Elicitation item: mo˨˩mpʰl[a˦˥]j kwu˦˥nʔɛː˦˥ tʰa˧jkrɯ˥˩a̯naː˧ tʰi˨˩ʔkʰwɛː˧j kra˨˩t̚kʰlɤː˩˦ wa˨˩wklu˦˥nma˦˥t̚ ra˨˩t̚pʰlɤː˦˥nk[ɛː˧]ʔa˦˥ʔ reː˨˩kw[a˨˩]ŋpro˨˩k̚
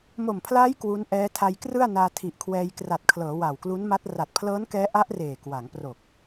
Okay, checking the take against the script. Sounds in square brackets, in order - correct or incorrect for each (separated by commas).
incorrect, incorrect, incorrect